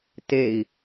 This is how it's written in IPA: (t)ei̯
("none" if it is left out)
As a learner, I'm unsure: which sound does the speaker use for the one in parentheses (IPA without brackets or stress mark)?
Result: t